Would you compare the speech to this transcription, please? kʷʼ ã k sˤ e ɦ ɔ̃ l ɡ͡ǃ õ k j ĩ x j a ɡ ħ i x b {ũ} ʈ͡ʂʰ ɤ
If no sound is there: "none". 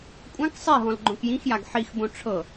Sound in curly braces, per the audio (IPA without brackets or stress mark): õ